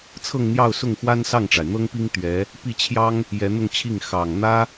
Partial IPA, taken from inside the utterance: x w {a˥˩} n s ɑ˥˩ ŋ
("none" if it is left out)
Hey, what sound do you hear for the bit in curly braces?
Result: a˥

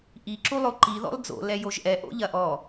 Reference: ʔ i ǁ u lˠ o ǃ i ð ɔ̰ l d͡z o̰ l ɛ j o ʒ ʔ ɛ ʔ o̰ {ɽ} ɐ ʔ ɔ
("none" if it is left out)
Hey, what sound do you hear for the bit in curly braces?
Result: ʎ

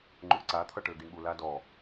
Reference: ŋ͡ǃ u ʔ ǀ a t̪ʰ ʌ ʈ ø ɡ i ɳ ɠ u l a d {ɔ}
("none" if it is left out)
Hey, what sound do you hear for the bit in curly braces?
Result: ɔ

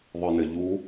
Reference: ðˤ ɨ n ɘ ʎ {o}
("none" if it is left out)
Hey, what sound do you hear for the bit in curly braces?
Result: u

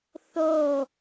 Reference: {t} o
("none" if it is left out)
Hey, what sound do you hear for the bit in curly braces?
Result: θ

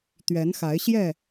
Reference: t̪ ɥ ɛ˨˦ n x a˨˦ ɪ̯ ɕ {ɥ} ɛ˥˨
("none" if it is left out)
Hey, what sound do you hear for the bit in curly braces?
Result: j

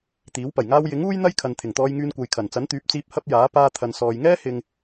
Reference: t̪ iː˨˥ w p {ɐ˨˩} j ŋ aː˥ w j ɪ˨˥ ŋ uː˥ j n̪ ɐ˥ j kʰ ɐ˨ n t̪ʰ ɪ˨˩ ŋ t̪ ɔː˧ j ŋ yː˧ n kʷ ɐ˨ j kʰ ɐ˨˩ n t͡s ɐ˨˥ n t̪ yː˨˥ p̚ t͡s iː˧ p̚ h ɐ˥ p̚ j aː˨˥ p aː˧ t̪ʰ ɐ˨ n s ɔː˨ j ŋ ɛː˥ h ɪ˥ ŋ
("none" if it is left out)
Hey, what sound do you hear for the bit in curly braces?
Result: ɐ˨˩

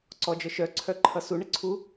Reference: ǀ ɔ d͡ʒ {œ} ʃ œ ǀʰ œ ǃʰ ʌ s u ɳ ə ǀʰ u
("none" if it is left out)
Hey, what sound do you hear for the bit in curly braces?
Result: œ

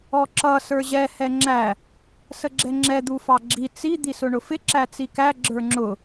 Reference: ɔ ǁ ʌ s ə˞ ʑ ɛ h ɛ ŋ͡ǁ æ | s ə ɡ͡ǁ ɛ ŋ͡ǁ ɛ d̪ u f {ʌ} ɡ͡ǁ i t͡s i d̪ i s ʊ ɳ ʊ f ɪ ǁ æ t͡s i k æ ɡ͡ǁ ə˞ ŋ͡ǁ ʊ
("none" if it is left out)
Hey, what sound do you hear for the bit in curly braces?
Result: ɑ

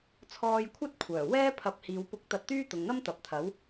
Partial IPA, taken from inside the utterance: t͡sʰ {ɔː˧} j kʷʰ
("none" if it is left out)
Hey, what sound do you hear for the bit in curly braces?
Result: ɔː˧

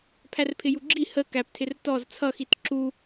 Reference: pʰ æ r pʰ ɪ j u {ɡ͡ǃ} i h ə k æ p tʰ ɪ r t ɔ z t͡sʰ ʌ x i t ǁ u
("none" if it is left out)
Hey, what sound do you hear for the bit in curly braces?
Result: ɡ͡ǁ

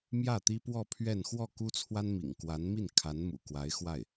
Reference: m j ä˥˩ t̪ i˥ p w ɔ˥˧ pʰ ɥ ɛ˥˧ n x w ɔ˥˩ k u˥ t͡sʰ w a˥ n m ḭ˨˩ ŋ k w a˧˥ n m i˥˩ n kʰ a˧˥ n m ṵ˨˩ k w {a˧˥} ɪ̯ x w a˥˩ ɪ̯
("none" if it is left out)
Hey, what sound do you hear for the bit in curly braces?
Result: a˧˥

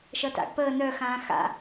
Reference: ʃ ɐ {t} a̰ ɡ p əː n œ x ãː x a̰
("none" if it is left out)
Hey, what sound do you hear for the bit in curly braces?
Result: t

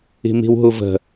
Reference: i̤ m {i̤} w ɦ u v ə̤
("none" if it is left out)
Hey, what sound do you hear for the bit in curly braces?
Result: i̤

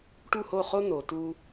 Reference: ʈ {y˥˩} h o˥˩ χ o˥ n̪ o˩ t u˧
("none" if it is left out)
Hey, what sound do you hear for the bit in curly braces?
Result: u˥˩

